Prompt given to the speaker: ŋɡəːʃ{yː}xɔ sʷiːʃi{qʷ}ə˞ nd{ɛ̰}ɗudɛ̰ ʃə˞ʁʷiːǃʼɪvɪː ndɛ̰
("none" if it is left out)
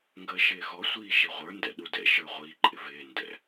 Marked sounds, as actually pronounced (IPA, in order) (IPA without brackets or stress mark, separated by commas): ɪː, ʁʷ, ɛ̰